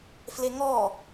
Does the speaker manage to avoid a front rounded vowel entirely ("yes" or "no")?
yes